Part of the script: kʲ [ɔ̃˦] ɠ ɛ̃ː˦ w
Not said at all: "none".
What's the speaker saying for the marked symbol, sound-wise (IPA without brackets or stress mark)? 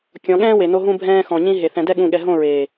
ɔ̃˨˦